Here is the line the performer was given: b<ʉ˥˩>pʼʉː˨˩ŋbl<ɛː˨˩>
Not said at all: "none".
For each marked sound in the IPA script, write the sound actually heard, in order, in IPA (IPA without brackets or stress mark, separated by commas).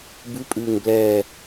ʉ˨˦, ɛː˨˩